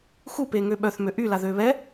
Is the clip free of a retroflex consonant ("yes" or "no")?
yes